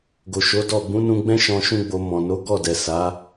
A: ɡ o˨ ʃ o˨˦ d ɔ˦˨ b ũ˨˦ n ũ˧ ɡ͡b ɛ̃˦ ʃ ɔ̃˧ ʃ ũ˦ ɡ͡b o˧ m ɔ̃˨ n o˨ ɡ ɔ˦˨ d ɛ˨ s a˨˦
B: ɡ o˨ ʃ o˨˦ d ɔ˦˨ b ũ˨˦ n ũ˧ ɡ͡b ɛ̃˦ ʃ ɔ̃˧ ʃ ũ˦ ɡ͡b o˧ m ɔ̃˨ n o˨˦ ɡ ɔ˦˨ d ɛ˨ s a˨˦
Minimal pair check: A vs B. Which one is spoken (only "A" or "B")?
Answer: B